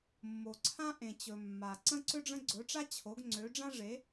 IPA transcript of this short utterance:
mː o˨ ǀʰ ã˥ ʔ ẽ˨ t͡ɕ ɵ˨ mː a˨ ǀ ə̃˥ ǀ ʏ˥ ɖ͡ʐ ə̃˥ ɡ͡ǀ ɵ˨˥ ʈ͡ʂ a˥ t͡ɕʰ o˨˥ ɡ ŋ͡ǀ ø˨˥ ɖ͡ʐ ã˥ ʐ e˨˥

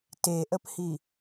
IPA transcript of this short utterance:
t e ʔ ə p h i

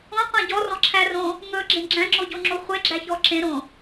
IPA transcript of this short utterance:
õ qʷ æ̃ ɟ ɔ r ɔ̃ ǁʰ æ r õ | ŋ ɵ ɡ͡ǁ ẽ ɡ͡ǁ æ̃ ŋ͡ǁ o ɟ o ŋ͡ǁ o χʷ e ɡ͡ǁ æ ç ɔ ǁ ẽ ɾ õ

